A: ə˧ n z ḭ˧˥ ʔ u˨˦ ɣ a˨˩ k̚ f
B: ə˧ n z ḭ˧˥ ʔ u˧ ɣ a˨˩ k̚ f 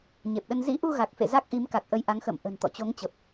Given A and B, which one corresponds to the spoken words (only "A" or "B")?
B